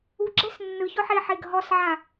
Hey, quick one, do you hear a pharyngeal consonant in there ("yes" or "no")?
yes